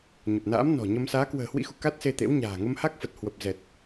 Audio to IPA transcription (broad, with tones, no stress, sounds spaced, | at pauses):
ɲ ə˨˩ p̚ n a̰ː˧˥ m n ɔ̤˨˩ ɲ ə˧ m s aː˨˦ k w ə̤ː˨˩ h w ḭ˧˥ x ṵ˧˨ k a˦˥ t̚ s e˧ t̪ ḛ˧˥ w ɲ a̤ː˨˩ ŋ ə˧ m h a˦˥ k̚ f ə˨˩ t̚ h w ə˨˩ p̚ z ɛ˨˩ t̚